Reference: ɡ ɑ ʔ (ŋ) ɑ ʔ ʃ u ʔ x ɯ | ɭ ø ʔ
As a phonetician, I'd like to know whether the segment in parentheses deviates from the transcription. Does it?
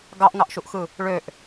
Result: no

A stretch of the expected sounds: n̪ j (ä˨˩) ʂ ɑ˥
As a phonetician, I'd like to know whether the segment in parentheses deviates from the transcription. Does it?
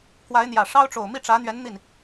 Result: no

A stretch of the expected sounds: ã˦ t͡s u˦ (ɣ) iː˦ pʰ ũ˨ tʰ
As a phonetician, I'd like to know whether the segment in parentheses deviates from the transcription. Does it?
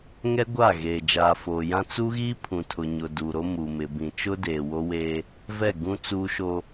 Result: no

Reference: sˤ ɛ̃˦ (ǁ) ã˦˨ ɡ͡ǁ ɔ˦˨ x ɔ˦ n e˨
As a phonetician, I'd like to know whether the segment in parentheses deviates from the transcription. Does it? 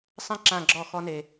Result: no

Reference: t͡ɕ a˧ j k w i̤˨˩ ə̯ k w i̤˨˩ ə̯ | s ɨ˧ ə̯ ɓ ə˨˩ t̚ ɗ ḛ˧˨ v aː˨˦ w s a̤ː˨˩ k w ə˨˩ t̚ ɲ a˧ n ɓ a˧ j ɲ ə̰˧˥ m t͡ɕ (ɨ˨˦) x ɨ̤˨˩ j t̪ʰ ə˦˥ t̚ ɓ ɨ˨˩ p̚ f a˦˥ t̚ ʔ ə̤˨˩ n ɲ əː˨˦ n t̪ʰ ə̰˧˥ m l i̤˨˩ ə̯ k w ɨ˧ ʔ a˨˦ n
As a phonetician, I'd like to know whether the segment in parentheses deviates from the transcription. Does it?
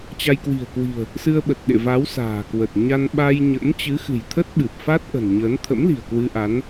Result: no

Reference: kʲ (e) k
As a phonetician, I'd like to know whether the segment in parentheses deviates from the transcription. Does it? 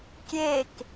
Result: no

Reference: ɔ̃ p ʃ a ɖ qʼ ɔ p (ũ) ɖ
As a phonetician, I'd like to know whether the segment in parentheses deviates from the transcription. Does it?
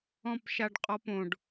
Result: yes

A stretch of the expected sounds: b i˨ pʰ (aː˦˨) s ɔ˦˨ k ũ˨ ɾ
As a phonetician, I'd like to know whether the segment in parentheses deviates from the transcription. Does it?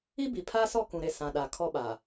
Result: yes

